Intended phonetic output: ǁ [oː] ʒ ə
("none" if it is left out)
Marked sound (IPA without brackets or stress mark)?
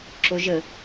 o